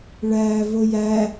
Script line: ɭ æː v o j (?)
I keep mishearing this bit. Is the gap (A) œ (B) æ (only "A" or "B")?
B